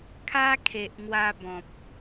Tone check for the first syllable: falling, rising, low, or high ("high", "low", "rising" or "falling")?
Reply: high